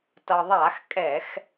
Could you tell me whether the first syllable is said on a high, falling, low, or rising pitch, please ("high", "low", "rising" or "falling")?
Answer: low